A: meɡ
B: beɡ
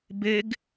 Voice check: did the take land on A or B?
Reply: B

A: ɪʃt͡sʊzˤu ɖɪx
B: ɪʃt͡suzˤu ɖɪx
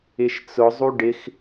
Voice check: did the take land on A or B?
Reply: A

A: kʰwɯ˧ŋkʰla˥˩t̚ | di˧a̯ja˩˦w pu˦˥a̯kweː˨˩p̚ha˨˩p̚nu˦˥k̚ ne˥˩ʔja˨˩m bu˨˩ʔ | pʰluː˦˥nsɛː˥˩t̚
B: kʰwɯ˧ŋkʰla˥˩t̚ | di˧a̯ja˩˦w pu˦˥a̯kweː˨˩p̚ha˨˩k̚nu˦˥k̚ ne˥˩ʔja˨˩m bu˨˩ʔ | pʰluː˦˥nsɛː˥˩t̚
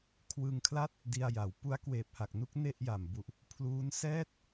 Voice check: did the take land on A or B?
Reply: B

